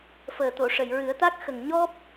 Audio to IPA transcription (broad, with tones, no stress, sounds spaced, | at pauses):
f əː˨˩ t̪ o˨˩˨ ʂ ə˨˩˨ j ɹ ɨ˨˩˦ ə̯ t̪ a˦˥ k̚ x ə˨˩ ŋ ɲ ɔ˦˥ p̚